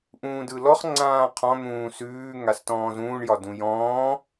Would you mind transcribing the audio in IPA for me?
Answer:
ʔ ũː d ɯ l ɔ χ ŋ͡ǀ ãː qʰ ɔ̃ n̪ ũː s ʉː ŋ a s t ɔ̃ː z ũː ɳ j ɒ d ũ j ɔ̃ː

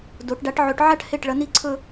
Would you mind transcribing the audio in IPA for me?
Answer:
d o˩˧ ʈ ɖ a˨˥ ʈ ʕ ɵ˨˥ ʈ ʕ a˥˧ ʈ h e˥˩ ʈ ɭ ɐ˨˥ n i˥˧ ǀʰ ɵ˥˧

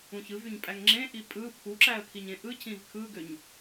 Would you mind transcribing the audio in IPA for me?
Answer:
ũ ç ɯ v y ɲ pʼ æ ŋ ŋ͡ǁ ẽ ʔ i pʼ ɯ pʰ u ǁ æ ə̯ kʰ i ɲ ẽ ʔ ɯ cʰ ĩ v kʰ ɯ ɡ ø ɲ

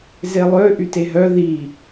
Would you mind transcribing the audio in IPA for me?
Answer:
z e lˠ ø ʔ y t e ɦ œ ð i

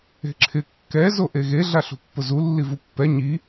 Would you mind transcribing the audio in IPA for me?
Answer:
e̤ ǁʰ ɪ kː ɛ z o ʔ e ɣ e ɮ a ɬ ṳ pː ʊ z u lː i v u pː ɛ ɲ i

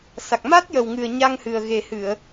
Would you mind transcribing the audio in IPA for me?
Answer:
s a˨˩ k̚ m a˦˥ t̚ j ə˨˩ w ŋ ɨ˨˩ ə̯ ɲ a˧ ŋ h ɨ˨˩ ə̯ ɣ e˨˩ h ɨ˨˩˨ ə̯

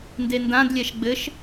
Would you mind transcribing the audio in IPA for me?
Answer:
n d e n d ã d lʲ ɛ ʃ ɡ͡b ɘ ʃ

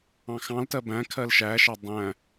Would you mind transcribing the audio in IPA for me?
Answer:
ɑ̃ x ɑ̃ l t ɜ b æ̃ kʰ ɜ l ʃ æ ʃ ɑ dˤ æ̃

